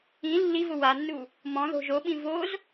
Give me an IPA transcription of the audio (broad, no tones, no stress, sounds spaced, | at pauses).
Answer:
ĩ lː i v ʊ w a nː u | m ɔ̃ ð o̤ ʒ o ɓ ĩ v o z